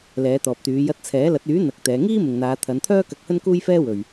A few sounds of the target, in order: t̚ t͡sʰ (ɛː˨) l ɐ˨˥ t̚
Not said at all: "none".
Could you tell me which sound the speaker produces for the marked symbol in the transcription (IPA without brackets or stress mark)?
ɛː˨˥